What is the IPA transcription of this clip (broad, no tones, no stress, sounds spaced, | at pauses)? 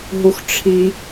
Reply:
ɦ u x ʈ͡ʂʰ i